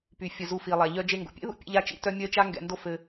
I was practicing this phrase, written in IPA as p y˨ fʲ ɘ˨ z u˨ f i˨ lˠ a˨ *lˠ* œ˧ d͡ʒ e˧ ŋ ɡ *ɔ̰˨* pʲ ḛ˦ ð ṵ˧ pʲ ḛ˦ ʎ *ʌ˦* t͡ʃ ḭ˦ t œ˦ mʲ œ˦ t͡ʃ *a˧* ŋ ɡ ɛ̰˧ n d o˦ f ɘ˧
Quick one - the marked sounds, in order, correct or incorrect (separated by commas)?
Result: incorrect, incorrect, incorrect, incorrect